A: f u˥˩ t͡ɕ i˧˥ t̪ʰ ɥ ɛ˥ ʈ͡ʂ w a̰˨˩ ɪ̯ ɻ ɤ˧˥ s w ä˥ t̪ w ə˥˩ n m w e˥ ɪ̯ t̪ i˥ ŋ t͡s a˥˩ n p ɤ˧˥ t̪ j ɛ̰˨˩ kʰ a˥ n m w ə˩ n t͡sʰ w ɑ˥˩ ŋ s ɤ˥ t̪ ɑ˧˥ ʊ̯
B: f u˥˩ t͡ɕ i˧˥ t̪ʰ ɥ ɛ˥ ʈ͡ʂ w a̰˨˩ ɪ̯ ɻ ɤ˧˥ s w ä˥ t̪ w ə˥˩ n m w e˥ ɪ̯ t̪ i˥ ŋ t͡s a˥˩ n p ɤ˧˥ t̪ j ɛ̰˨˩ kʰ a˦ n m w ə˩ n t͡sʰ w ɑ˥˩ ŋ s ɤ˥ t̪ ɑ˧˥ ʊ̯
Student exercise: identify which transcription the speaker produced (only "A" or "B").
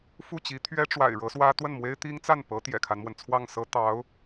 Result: B